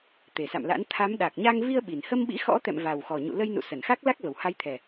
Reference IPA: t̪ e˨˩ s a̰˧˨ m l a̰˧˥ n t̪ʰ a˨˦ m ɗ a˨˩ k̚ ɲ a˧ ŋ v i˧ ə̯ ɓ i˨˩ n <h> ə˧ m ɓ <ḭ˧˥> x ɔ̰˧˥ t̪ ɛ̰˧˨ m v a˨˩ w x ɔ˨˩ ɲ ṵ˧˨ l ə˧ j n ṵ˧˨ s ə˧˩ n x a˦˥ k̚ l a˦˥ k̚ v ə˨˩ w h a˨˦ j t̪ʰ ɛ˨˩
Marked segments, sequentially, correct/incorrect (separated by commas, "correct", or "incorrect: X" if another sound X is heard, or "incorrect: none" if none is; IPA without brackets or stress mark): correct, correct